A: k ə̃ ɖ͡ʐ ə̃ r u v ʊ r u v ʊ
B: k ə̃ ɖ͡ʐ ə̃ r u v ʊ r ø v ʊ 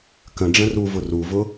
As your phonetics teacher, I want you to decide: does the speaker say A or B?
A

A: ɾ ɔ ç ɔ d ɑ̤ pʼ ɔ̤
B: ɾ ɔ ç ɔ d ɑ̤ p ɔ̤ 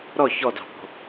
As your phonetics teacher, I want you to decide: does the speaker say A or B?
B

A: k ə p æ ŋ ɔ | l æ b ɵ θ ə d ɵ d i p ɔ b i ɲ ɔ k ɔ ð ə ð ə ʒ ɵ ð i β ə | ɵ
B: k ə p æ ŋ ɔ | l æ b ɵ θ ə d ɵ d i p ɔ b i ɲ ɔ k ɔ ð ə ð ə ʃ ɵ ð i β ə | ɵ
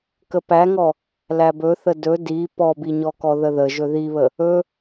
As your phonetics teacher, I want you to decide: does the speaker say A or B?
A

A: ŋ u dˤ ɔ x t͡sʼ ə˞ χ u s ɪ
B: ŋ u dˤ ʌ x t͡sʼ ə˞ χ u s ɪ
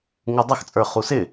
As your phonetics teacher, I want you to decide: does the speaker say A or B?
B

